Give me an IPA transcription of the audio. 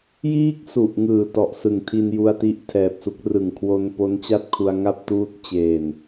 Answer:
j iː˥˩ k̚ s u˨˩ ʔ ŋ ɯː˨˩ t ɔ˨˩ ʔ s ɯ˨˩ ŋ tʰ i˧ n j u˧ a̯ t i˥˩ ʔ tʰ ɛː˨˩ p̚ s u˥˩ k̚ r ɯ˨˩ ŋ kʰ w o˧ n p o˦˥ n t͡ɕ a˥˩ t̚ kʰ u˧ a̯ ŋ a˥˩ p̚ t uː˦˥ t̚ t͡ɕ eː˨˩ n

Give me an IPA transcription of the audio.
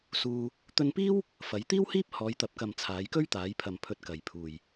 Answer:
s uː˧ | t̪ ɵ˧ n p iː˥ w | f ɐ˨˧ j t̪ iː˥ w h iː˥ p̚ h ɔː˨˧ j t̪ ɐ˨ p̚ k ɐ˨ m t͡sʰ aː˨˧ j k ɵ˥ ɥ t̪ aː˨˧ j pʰ ɐ˨ m pʰ ɵ˧ t̚ k ɐ˨ j pʰ uː˨ j

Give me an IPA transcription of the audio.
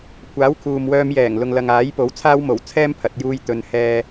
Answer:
kʷʰ aː˨˥ w kʰ uː˨ m w œː˧ m j ɛː˨˩ ŋ l ʊ˨ ŋ l ɐ˨ ŋ aː˨˥ j p o˨˥ w t͡sʰ aː˥ w m o˨˩ w t͡sʰ ɛː˥ m pʰ ɐ˨˥ t̚ j uː˥ j t̪ ɵ˨ n h ɛː˧

